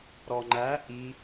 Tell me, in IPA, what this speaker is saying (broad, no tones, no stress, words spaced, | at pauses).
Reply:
ɾɔŋ͡ǃæ ʔi